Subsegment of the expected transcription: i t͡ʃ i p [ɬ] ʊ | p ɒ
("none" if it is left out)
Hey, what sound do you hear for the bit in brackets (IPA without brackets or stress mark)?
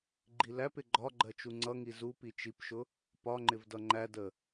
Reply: ʃ